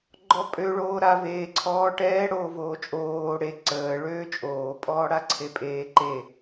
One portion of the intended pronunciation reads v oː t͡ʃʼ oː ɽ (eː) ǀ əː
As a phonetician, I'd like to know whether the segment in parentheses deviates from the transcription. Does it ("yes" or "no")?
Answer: yes